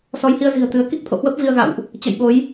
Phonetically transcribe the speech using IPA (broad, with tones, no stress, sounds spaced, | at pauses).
s ɔ˨˦ j h i˧ ə̯ z i̤˨˩ ə̯ t̪ ɨ˨˦ ə̯ k i˦˥ k̚ t̪ʰ o̰˧˨ h w ə˦˥ p̚ v i˧ ə̯ ɣ a̰˧˨ w ʔ | t͡ɕ ə̰˧˨ j ɓ o˨˦ j